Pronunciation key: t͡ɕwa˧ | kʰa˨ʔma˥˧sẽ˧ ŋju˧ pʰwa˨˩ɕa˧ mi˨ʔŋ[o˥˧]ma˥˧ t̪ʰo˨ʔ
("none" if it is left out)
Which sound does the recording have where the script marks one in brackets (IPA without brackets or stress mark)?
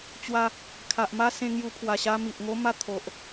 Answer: o˦